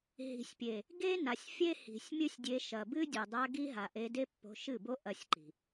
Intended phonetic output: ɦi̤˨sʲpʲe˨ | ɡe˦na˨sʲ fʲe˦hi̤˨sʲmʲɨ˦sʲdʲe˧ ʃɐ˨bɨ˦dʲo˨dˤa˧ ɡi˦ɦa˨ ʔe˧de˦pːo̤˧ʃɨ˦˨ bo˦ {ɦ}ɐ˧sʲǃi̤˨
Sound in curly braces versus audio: incorrect: ʔ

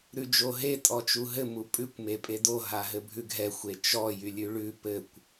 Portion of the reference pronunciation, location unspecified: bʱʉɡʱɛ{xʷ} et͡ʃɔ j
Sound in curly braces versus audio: correct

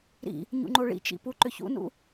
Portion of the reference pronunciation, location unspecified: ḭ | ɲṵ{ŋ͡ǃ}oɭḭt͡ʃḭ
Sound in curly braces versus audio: correct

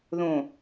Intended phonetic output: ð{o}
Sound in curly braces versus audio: incorrect: õ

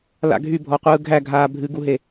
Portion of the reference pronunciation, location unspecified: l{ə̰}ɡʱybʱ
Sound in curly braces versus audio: incorrect: a̰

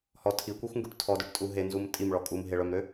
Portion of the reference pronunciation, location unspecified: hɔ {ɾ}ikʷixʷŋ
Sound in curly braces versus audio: incorrect: tʰ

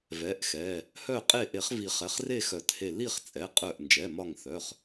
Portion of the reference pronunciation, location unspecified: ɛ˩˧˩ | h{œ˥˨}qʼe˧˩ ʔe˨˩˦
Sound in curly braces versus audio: incorrect: œ˧˩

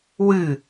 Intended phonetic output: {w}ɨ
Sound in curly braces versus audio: correct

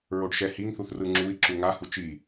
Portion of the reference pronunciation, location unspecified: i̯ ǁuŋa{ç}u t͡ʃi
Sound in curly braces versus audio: incorrect: h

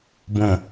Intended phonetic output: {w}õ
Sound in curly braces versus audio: incorrect: b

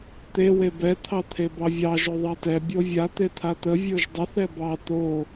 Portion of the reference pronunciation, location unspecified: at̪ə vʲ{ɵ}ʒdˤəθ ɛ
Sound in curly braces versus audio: incorrect: o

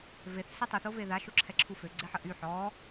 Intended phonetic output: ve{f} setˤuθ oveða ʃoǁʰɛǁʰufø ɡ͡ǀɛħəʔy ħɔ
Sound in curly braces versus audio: incorrect: θ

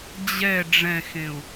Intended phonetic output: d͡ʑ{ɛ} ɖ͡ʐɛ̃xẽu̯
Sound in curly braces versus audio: correct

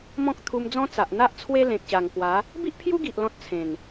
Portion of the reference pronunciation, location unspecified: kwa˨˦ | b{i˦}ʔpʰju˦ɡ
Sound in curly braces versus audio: correct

